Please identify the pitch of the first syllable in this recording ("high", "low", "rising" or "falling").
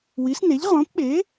rising